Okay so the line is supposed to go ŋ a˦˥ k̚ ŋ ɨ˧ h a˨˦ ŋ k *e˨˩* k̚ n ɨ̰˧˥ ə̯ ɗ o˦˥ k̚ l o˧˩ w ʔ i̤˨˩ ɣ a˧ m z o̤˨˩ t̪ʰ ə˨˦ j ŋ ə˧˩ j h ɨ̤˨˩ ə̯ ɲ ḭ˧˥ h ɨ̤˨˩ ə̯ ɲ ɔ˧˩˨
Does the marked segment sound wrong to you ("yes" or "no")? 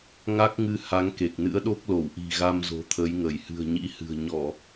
no